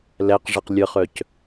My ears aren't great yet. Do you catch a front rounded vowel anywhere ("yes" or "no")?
yes